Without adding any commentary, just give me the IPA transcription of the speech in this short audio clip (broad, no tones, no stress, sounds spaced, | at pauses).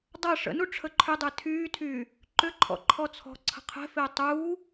dˤ ɐ ʂ ə̰ n u ʈ͡ʂʰ ə ǃʰ ʏ dˤ e tʰ yː tʰ yː | ǃ ʏ ǃʰ ɔ̰ ǃʰ ɔ t͡sʰ ɔ̤ ǀʰ ə̤ qʰ ɛ̤ f ɪː tˤ uː